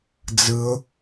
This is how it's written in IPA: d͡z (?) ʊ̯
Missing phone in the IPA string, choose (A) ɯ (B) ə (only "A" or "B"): A